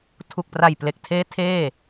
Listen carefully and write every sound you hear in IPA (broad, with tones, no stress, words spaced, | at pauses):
tʰu˨˩k̚pra˨˩jple˨˩k̚tʰeː˦˥ tʰeː˥˩